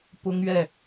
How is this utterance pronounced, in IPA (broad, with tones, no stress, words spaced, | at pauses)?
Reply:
pʊ˥ŋɥɛ˥˩